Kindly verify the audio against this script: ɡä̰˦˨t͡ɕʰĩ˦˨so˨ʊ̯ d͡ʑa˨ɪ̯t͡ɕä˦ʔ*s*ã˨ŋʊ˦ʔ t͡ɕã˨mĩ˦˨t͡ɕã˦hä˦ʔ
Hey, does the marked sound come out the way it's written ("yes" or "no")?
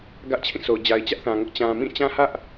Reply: no